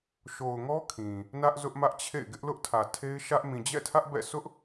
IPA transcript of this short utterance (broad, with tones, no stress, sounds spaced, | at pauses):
ʃ o˨ ʊ̯ ŋ ɔ˦ kʰ ĩ˨ | n ä˦ ʔ z ʊ˦ ʔ m ä˦ ʔ t͡ɕʰ ḛ˦˨ ɪ̯ ɡ ɪ˦ ʔ l ʊ˦ ʔ tʰ ä˨ tʰ e˦ ɪ̯ ʃ ä˦ ʔ m ĩ˨ d͡ʑ ɛ̰˦˨ tʰ ä˦ ʔ b ɛ̰˦˨ sʰ ʊ˦ ʔ